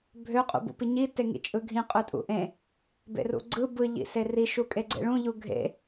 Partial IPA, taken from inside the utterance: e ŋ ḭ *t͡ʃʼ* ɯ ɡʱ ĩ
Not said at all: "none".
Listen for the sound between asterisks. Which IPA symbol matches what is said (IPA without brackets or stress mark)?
t͡ʃʼ